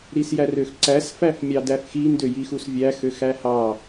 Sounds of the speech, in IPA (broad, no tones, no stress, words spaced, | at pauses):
ɾisjærøxǀæs fæfmʲɑdæfxi ndøjixusvʲæ xøxæhɑ